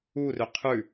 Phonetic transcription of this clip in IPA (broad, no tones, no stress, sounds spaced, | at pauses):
u r ø qʰ ʉ